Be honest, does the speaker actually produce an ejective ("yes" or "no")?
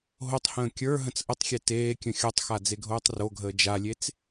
no